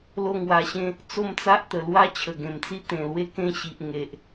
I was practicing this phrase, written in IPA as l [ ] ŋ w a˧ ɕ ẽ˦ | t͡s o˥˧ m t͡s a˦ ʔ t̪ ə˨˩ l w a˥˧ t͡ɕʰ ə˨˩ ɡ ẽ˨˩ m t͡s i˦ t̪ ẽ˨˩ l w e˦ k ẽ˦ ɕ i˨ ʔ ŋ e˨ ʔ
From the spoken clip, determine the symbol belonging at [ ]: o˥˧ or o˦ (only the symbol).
o˥˧